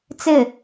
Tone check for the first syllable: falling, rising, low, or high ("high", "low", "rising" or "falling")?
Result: falling